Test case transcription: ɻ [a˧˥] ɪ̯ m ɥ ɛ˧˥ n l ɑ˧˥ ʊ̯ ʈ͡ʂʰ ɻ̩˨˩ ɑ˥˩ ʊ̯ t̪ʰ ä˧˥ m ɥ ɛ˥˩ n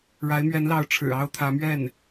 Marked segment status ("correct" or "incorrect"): correct